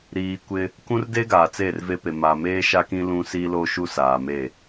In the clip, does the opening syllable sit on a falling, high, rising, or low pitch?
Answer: low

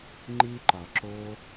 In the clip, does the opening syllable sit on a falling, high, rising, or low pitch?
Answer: high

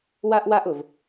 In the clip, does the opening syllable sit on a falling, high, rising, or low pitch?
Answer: high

